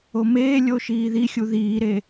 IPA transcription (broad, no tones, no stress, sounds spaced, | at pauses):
o m eː lʲ o ʃ iː ð i xʲ u ð iː ɾ e